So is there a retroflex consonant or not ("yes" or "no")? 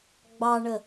yes